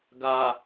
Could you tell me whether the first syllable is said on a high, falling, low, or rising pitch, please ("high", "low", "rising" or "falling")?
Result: low